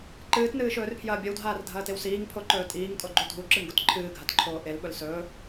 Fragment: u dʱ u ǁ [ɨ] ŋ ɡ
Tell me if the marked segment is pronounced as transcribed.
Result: yes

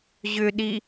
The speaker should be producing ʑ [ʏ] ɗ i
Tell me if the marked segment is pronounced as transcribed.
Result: yes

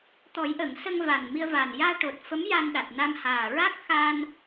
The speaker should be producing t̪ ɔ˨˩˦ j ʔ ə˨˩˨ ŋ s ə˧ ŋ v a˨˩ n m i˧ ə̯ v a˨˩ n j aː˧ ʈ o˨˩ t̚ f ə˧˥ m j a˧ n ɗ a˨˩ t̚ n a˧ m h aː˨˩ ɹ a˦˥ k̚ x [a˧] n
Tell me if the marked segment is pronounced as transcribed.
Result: yes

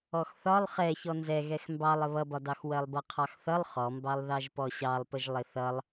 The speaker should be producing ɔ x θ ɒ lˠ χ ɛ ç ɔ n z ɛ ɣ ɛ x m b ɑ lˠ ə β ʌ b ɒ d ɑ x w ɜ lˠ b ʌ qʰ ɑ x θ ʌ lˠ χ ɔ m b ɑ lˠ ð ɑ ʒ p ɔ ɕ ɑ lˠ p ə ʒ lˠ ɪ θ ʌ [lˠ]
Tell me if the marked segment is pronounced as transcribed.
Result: yes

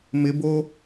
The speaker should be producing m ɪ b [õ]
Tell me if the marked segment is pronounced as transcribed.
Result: no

